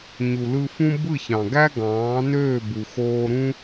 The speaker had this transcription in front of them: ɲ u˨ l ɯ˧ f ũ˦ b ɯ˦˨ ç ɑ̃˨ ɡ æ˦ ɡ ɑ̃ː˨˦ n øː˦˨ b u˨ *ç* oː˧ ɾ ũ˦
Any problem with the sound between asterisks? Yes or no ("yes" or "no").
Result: yes